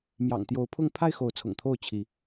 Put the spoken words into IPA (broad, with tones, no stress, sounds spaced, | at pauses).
m j ɑ̰˨˩ ŋ t̪ j o˨˦ ʊ̯ pʰ ʊ˥˨ ŋ pʰ a˥˨ ɪ̯ x o˨˦ ʊ̯ t͡sʰ ʊ̰˨˩ ŋ t̪ʰ o˥˨ ʊ̯ t͡ɕʰ i˨˦